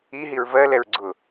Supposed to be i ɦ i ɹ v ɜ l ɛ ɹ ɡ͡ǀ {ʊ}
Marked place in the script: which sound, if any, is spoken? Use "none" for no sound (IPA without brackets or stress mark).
ʊ